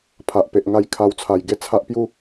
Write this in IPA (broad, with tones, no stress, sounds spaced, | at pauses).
pʰ a˨ ʔ p e˨ ʔ ŋ a˧ j kʰ a˧ w t͡sʰ a˧ j ɡ e˦ t͡sʰ a˦ ʔ p j u˦